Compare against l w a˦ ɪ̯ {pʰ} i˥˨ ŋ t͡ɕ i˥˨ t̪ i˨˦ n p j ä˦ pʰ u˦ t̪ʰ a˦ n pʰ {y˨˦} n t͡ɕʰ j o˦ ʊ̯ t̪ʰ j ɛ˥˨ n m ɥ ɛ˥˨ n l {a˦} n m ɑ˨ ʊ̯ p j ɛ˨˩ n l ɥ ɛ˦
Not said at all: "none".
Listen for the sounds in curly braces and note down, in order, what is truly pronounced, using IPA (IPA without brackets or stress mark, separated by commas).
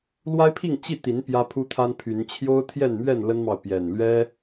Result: pʰ, y˨˦, ə˦